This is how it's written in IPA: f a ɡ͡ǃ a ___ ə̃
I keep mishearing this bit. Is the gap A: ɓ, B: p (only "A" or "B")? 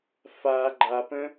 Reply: B